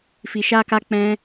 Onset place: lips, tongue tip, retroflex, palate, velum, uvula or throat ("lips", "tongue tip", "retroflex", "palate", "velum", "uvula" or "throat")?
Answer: lips